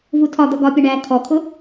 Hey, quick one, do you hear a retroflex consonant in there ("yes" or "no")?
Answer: yes